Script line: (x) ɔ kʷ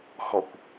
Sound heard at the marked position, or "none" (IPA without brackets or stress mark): x